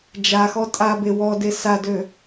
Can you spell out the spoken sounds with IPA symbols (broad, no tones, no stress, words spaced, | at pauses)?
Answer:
d͡ʒaxɔ tʼabe wɔde sadø